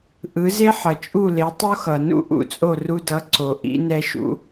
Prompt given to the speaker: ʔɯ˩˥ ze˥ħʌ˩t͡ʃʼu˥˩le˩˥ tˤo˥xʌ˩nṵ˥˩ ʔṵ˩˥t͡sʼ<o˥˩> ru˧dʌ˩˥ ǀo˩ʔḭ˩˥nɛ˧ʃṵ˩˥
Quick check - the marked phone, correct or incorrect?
correct